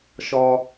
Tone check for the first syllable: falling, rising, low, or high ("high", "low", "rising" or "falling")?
high